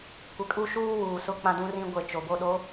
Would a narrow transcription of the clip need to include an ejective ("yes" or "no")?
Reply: yes